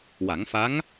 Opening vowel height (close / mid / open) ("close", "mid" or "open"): open